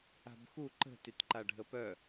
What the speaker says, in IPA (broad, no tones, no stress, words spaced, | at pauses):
a̤bxu ǃə̤ tytǃaɖʱəpœ